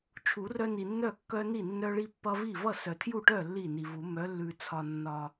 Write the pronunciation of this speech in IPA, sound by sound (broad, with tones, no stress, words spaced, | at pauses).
t͡ʃʰu˨˩˦rœ˦ni˨nːœ˥˩ kːœ˦ni˥˩nːœ˦ ɭi˦pːʌ˦vi˥˩ vʌ˥˩sœ˨tʰju˥˩ʈœ˥˩ lːi˥˩ni˨vu˨˩˦ mœ˨˥lːʉ˨ t͡sʰɒ˨nːɒ˨